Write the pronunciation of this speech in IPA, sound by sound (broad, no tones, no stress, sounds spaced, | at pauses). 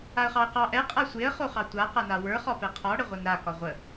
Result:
a ə̯ χ ɑ ə̯ q ɑ ʔ ɛ qʼ a sʷ e ə̯ χ o χ ɑ tʷ a q a n a w ə˞ χ ɒ p ɛ qʰ ɒ ɽ ə ʁʷ ɛ n ɾ a k ɒ ʁʷ ə